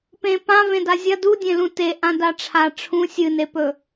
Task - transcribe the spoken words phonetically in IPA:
p ẽ p ã v ẽ d a zʲ ɐ d u dʲ ẽ l ũ t e ʔ ã d a ʈ͡ʂʰ a ʈ͡ʂʰ ũ sʲ ɨ n e p ɵ

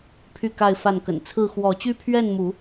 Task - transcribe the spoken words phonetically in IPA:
pʰ y˥˨ k a˥˨ ɪ̯ f a˥˨ n k ə̰˨˩ n t͡sʰ ɹ̩˥˨ x w ɔ˨˦ t͡ɕ y˦ pʰ ɥ ɛ˥˨ n m u˨˦

